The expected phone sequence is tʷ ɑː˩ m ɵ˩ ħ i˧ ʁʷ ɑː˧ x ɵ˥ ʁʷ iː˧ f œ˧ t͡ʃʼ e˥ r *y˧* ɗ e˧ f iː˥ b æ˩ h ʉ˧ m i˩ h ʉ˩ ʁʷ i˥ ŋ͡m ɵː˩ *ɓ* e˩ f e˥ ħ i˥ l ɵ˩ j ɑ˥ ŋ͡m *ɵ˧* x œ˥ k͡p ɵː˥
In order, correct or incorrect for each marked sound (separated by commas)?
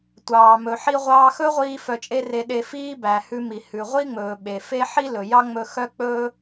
incorrect, correct, correct